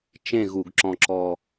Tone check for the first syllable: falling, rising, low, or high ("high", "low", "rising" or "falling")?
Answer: falling